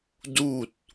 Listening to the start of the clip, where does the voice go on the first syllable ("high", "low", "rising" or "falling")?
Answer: falling